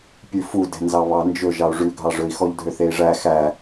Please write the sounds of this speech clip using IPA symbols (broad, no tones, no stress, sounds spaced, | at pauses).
pʲ ʉ f u d ɛ̤ n z ɑ β ɑ n d͡ʒ ɵ ʒ ɑ u̯ ʐ ʉ ɡʱ ɑ ʐ ɵ i̯ x ɔ ʎ dʱ ø θ e i̯ ʐ æ x æ